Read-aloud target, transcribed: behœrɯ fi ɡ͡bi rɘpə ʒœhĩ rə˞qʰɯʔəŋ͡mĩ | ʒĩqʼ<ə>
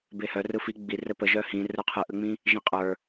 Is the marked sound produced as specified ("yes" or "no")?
no